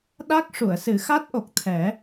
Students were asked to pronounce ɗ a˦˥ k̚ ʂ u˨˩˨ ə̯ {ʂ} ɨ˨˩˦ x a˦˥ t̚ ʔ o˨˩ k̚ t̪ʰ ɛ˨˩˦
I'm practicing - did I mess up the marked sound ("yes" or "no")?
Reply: yes